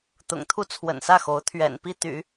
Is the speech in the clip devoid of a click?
yes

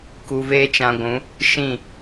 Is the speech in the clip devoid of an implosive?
yes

